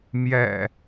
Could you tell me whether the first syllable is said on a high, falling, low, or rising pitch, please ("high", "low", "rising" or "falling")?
low